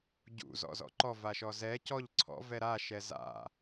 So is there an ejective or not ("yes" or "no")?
no